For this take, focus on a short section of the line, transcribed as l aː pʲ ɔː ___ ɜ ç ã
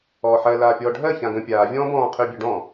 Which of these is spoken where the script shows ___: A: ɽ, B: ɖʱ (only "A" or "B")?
B